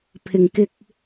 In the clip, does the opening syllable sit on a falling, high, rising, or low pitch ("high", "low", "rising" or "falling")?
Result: low